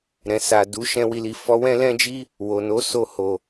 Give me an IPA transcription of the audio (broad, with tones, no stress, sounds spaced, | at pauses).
ɾ ɛ̃˨ s a˨ d u˨˦ ʃ ɛ̃˧ w i˨ l i˨ f ɔ˨˦ w ɛ̃˦ l ɛ̃˦ d͡ʒ i˦ | w o˨ n o˨˦ s o˧ h o˨